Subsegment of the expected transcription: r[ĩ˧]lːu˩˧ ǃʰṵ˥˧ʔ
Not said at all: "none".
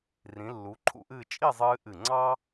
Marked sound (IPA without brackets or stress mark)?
ĩ˩˧